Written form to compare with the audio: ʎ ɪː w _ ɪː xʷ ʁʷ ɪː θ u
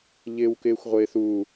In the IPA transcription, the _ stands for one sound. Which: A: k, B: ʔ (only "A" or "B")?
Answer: A